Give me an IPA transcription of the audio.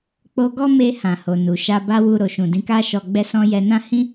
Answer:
k͡p o˧ ɡ ɔ˦ m e˧ h ã˨ h o˨ n u˨ ʃ a˧ b a˦ w u˧ ɾ o˨ ʃ ũ˨ d ĩ˧ k a˦ ʃ ɔ˧ ɡ͡b ɛ˦ s ɔ̃˦ j ɛ˧ n ã˦ h ĩ˦

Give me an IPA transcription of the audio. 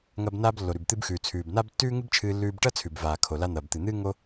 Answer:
ŋ ɐ˧ b n aː˧ b lː o˩ ɾ ʉ˩ b t̪ ɨ˧ b x ʉː˩ t͡sʰ ʉː˩ b n a˥ b tː ʉː˥ ŋ ɨ˥ b t͡ʃʰ ɨː˧ lː ʉː˧ b ʈ ɐ˥ t͡sʰ ʉ˩ b v aː˩ kʰ o˩ l a˧ n̪ ɐː˩ b t̪ ɨ˩ n̪ ɨː˥ ŋ o˥

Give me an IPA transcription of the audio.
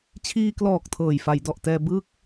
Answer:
t͡ɕʰ iː˧ k l ɔː˨˩ k̚ tʰ ɤː˨˩ j f a˩˦ j d ɔ˨˩ ʔ t ɛː˧ b ɯ˥˩ k̚

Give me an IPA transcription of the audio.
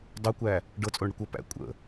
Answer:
dˤ o kʷ æ | ɖ ɤ t͡sʼ o ɳ ɽ ə kʷ ʌ p æ̰ kʷʼ ə̰

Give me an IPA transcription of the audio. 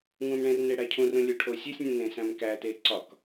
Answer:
ŋ ũ m ɳ ẽ r n e ɽ æ cʰ ũ r ũ lʲ o ʈʰ o sʲ o sʲ nʲ ũ n ẽ s æ̃ m k æ t e ǀ ɒ k

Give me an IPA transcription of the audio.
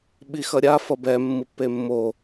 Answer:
ɓ i x ʌ ɾʲ a f ʌ b ɛ mː ɯ pː e mː o

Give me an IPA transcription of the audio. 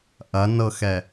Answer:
ʔ ɐ n ɤ x ɛ

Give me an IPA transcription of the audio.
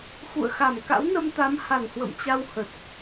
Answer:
x ṵ˧˨ ə̯ x a˧˩ m k a̰˧˥ w n ə˧ m t̪ a˨˦ m h a˧˩ n h w ə̰˧˨ m t͡ɕ a˧ w h ə˨˩ t̚

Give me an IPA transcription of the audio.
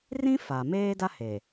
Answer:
r ĩ˦ f a˨ m eː˦ d a˦ h e˨

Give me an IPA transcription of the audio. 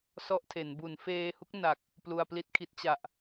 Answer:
s ɔ˥˩ ʔ tʰ e˩˦ n b u˩˦ n f eː˧ h u˦˥ k̚ n a˨˩ k̚ | p l u˧ a̯ p l i˥˩ t̚ kʰ i˦˥ t̚ t͡ɕ a˨˩ ʔ

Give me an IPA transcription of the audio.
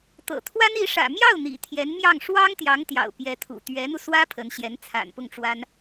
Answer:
t̪ ɤ̰˨˩ t̪ʰ w a˥ n i˧˥ ʂ ä̰˨˩ m j ɑ˥˩ ʊ̯ n̪ ḭ˨˩ t̪ʰ j ɛ˧˥ n m j ɑ˥˩ ŋ ʂ w ɑ˥ ŋ t̪ j ɑ˧˥ ŋ t̪ j ɑ̰˨˩ ʊ̯ p j ɛ˧˥ t̪ʰ ṵ˨˩ t̪ ɥ ɛ˧˥ n̪ u˧ s w ä˥ pʰ ə˧˥ n ɕ j ɛ˧˥ n t͡sʰ a̰˨˩ n p ʊ˥˩ ŋ ʈ͡ʂ w a˥ n

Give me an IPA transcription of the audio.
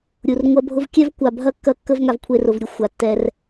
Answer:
ɾʲ u˨ r ŋʷ ɐ˦ bʱ ʊ˦ v kʲ ɛ˦ v kʷ a˨ bʱ ɐ˦ kː ɐ˦ kː ə˦ v ŋ a˧ v kʷʰ e˧ r ʊ˨ v ɾʲ u˧ xʷ a˨ tː ɛ˧ r

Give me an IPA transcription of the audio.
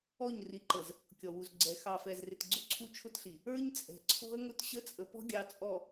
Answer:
ɔ˦˨ ɲ r i˨ ǃ ə˨ z | kʲ ɔ˨ w u˨ z ɡ͡ǀ ɛ˨ x ɑ˨ f ɛ˨ z r ɪ˨ t ɡ͡ǀ ʊ˦ ǀʰ u˦ t͡ʃʰ ʊ˦ t ɬ i˨ | ə˞˦ ɲ t͡sʼ ɛ̤˨ ǀʰ ɔ̤˦ ə̯ ŋ ʊ˦ t ɕ ə˦ t͡sʼ ə˨ p ɔ̤˦ ɡʲ ɑ˨ t͡sʼ ɔ˨

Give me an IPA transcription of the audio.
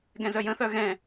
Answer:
ɡ ɛ̃ z œ j ə̃ θ œ ɣ ɛ̃

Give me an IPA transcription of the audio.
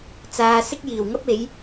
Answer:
t͡s aː˨ s ɪ˥ k̚ j iː˨˩ w ŋ ɐ˥ p̚ e˨˥ j

